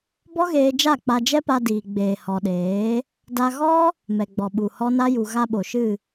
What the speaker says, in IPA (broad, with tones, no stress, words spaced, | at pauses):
bɔ˦ɣeː˧ d͡ʒa˦˨k͡pa˧d͡ʒɛ˦pa˧ diː˨ɡ͡beː˨hɔ˨ ɗeː˨˦ | da˧ ɣɔ˦ | mɛ˨ɡ͡bɔ˨ɓu˨hɔ˦ na˦ju˨ ɣa˧ɓo˨ʃɨ˦˨